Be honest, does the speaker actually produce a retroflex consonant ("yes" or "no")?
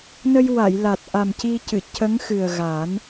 no